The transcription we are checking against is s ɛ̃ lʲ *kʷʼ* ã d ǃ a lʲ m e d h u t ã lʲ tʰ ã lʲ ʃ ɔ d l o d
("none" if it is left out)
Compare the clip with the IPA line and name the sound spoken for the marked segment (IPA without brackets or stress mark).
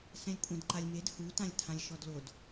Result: kʷʼ